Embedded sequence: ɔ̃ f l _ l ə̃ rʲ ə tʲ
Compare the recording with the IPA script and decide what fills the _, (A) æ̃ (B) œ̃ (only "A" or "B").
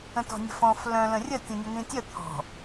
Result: B